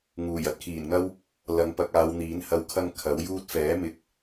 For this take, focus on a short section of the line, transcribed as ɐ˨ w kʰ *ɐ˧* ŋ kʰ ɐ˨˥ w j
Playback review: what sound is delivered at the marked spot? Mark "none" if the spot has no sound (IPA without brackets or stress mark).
ɐ˧